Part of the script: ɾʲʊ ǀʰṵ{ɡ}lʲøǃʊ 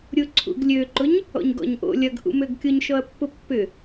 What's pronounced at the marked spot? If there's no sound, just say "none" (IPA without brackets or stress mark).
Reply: ɡ